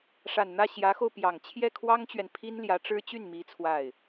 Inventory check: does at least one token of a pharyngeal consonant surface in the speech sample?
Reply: no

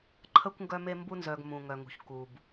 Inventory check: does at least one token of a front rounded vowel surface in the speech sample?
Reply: yes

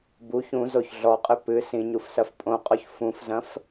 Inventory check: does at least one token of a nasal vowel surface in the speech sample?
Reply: yes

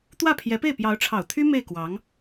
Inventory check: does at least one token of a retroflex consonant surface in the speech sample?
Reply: yes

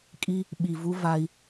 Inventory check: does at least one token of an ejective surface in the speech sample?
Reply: yes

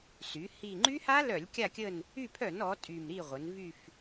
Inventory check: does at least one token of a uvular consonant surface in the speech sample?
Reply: yes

